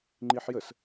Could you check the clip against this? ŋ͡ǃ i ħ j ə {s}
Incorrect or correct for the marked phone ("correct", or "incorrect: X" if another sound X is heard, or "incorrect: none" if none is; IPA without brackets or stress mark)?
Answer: correct